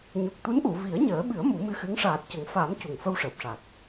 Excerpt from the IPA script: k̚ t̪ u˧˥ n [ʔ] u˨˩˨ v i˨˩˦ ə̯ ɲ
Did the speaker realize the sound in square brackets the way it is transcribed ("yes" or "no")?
yes